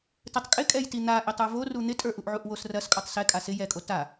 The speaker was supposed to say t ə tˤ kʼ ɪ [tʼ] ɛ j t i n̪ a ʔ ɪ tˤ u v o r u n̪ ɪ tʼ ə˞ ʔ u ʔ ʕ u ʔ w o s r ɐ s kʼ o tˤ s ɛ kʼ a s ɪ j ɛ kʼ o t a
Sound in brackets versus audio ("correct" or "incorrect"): incorrect